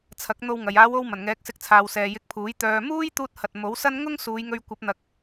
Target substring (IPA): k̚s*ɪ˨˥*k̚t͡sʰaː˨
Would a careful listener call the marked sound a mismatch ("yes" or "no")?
no